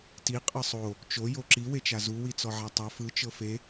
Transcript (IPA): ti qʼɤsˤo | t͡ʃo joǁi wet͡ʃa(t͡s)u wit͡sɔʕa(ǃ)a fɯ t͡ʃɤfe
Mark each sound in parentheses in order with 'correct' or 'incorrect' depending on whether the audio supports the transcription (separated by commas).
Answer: incorrect, incorrect